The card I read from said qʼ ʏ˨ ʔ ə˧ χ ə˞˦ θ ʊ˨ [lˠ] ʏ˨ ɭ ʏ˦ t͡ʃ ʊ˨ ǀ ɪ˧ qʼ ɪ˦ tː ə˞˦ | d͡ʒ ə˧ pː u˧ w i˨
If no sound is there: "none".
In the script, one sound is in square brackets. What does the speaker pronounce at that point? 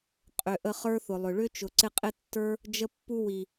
lˠ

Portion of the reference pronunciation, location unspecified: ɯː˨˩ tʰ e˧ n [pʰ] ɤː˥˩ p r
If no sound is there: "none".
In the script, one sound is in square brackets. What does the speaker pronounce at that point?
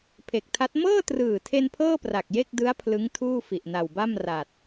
pʰ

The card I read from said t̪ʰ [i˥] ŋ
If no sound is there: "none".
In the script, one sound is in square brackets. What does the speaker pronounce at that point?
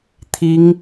i˥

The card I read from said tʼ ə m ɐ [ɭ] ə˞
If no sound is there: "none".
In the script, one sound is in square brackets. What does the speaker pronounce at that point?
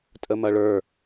ɭ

